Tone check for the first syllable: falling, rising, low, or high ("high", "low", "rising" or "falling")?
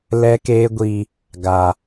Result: high